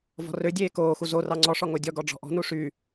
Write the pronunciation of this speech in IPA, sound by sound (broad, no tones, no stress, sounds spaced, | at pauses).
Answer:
v ɔ̤ r ø dʲ eː k oː x u z o r ɑ ŋ͡ǀ ɔ ʂ ɔ ŋ o dʲ ɔ ɡ ɔ ɖ͡ʐ ɔ̤ ʔ ɔ̤ n u ʂ y